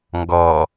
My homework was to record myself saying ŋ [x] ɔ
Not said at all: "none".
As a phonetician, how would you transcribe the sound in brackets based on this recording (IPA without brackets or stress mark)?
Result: ɡ